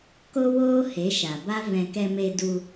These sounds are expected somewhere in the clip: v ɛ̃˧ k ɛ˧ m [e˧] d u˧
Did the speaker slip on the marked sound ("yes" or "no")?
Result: no